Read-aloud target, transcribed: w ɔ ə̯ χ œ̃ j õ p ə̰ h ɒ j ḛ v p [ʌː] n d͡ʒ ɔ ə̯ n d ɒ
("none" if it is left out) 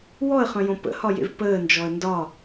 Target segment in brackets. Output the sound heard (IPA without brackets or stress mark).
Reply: əː